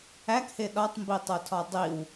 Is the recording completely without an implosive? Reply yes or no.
no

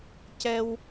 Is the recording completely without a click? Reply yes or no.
yes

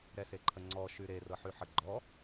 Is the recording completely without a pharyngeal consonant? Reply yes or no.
no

